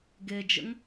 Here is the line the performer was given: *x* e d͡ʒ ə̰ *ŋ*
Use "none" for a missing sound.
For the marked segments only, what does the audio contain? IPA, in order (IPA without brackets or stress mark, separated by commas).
ɡ, ŋ